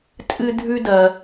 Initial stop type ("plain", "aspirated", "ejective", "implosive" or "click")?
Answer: ejective